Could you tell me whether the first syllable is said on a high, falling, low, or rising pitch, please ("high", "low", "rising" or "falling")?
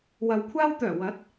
low